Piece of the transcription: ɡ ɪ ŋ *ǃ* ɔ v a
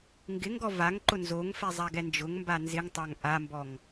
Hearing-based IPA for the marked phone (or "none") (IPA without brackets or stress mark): ɡ